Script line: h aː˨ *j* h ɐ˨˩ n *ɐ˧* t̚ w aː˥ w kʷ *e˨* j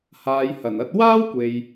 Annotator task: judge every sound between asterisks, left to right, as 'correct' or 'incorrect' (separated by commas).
correct, correct, correct